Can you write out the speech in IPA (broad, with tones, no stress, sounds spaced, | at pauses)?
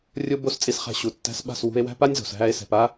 rʲ o˦ b o˦ s t͡sʼ i˧ s χ æ̤˧ ɕ u˨ tː æ̤˧ s ɓ a̤˦˨ s w ṳ˧ e̯ w æ̤˦ p a˦ nʲ z o̤˨ s ɦ æ˧ e̯ s ɛ̤˨ p a˦